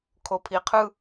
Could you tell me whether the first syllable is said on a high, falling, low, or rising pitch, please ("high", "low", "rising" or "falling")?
low